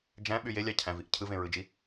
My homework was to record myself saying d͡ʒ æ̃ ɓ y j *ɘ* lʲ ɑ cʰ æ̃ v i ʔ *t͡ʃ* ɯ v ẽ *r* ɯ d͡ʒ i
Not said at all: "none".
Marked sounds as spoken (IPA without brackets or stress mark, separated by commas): e, cʰ, ɹ